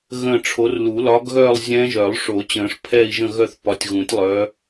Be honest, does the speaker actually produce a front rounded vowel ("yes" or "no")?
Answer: yes